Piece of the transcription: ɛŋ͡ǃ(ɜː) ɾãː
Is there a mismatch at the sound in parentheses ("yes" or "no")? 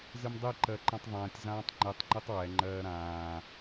no